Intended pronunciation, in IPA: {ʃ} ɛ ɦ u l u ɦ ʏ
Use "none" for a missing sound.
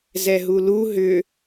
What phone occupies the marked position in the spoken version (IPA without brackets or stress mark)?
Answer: z